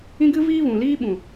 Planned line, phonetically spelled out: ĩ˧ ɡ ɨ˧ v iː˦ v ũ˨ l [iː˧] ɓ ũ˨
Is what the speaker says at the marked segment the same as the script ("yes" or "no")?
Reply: no